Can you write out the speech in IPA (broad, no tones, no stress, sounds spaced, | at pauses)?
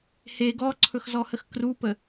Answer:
h e ɡ ɔ ǀʰ ɵ x z ɔ h ə x k r u p ə